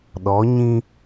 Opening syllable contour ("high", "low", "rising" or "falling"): rising